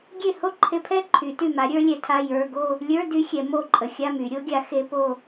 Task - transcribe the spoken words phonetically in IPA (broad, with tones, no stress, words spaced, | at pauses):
ɡʲe˥˩ho˥˧ǃʰe˧˥˧pʰɛ˥˧ ǃʰy˨˩˦ty˥˩ma˨˥ ɾʲə˞˦˥lʲɛ˨˥tʰa˧˥˧ jə˞˧˥˧ ɡo˥˧ | lʲə˞˧˥˧ dy˦˥ xʲɛ˨˩˦ mo˥˩ǃʼə˨˩˦xʲa˧˥˧my˨˩˦ ɾʲo˨˥ɡʲa˨˥ xe˦˥po˥˧